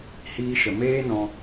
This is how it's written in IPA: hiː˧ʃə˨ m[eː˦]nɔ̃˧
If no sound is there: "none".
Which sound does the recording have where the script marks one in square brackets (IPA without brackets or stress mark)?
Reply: eː˦